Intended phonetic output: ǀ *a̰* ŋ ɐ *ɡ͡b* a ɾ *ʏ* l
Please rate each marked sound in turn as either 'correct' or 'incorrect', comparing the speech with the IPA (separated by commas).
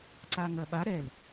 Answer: incorrect, incorrect, incorrect